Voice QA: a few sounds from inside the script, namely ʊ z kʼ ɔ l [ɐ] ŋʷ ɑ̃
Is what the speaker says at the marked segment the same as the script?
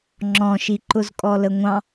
no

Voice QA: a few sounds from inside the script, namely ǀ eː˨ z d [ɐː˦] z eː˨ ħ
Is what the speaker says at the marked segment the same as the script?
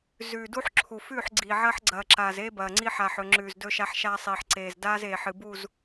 no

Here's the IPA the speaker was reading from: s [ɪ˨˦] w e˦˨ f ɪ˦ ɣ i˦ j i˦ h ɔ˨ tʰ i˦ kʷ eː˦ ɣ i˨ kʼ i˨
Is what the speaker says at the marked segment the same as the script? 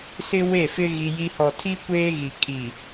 no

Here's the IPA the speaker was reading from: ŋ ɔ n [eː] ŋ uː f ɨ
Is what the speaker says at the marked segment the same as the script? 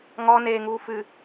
yes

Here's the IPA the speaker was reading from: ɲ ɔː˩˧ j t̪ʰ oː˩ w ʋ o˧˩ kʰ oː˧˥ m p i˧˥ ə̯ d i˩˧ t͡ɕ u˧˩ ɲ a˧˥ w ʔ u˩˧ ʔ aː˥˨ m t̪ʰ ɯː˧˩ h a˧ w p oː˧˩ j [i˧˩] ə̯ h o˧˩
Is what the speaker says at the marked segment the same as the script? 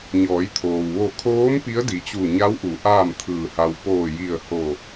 yes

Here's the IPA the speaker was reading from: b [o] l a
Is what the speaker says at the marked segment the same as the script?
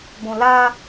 no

